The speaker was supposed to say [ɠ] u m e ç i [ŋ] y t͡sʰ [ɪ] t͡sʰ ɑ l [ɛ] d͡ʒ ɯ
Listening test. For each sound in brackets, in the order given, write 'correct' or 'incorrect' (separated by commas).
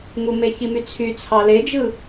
incorrect, incorrect, incorrect, incorrect